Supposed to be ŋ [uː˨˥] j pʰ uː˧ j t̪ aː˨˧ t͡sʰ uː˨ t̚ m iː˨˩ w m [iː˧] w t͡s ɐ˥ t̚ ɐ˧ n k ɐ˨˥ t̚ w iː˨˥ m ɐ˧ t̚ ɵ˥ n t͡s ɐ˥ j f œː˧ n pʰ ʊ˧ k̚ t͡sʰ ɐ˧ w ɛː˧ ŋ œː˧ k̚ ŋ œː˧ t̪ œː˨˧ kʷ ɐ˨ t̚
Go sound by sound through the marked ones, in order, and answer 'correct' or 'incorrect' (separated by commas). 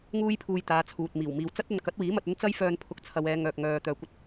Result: incorrect, incorrect